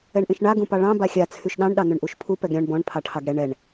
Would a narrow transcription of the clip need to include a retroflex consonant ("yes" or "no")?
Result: yes